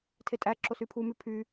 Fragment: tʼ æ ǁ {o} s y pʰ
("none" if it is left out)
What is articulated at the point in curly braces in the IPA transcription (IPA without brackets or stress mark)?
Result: o